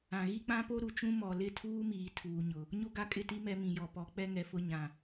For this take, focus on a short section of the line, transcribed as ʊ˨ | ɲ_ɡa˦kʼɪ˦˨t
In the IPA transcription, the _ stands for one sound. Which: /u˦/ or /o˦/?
o˦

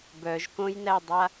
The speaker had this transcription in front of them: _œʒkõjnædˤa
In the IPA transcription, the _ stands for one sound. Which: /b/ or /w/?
b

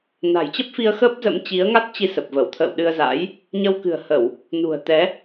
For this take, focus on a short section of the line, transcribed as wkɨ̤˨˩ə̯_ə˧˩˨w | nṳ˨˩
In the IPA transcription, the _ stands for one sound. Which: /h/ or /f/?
h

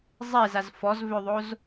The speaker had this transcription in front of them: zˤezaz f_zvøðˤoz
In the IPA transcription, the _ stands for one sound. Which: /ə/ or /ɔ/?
ɔ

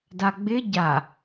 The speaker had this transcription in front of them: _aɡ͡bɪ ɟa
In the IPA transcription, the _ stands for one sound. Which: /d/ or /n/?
d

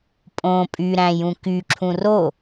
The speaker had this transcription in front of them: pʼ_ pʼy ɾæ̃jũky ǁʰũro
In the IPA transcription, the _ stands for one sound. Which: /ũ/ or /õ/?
õ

